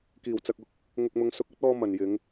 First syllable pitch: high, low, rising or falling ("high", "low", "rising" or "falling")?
low